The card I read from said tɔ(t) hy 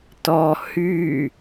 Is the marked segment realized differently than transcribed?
yes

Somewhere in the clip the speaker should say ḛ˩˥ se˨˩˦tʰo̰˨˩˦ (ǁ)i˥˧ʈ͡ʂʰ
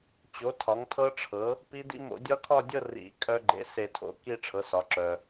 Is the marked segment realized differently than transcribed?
yes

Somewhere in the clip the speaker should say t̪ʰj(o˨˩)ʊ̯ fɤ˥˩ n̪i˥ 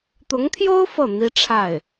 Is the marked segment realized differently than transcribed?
yes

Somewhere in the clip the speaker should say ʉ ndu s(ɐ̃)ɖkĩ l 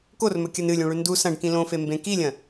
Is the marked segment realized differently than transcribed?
no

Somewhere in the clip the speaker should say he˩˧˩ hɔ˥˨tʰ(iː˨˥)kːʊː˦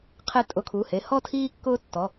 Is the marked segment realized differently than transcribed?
yes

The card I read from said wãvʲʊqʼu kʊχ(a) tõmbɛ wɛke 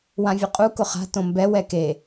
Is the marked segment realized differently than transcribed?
yes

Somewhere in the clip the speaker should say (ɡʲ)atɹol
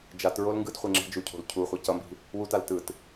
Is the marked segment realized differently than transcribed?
yes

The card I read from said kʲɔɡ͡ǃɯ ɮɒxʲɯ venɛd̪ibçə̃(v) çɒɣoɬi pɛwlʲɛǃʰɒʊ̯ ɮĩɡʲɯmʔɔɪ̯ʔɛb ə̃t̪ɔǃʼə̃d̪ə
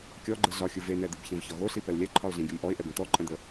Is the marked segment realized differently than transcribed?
no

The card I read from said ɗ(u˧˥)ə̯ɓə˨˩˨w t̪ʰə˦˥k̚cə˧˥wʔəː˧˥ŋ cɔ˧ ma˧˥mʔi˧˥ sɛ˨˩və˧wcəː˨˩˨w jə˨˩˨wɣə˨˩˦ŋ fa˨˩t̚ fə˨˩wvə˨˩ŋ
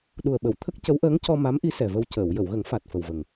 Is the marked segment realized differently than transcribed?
yes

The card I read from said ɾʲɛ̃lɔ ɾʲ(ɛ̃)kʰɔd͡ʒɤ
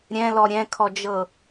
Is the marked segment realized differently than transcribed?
no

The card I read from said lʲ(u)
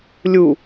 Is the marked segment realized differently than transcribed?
no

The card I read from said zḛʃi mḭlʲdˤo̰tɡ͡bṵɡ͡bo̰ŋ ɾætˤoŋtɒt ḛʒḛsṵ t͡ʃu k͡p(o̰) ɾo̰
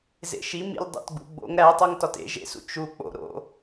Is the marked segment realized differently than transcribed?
no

